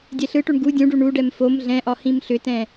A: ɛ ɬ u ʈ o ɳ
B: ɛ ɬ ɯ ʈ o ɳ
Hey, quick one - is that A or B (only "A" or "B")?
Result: B